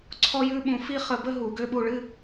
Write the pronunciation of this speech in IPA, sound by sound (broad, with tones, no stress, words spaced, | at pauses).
ǀʰɔ˥jʉ˧˥˧ɓũ˦˨ fi˥χə˦˨ bə˥ɦu˧˩˧ ɡø˧˥˧ ɓu˦˨ɭɨ˧˥˧